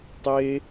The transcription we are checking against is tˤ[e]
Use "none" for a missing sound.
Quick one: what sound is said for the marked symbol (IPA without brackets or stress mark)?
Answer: e